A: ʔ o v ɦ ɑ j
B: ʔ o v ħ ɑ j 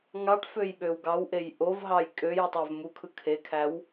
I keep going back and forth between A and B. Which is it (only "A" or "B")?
A